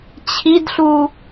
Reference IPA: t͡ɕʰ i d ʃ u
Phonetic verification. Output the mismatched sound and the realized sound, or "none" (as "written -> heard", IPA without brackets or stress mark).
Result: ʃ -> ɬ